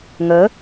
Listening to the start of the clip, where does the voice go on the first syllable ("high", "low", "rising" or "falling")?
rising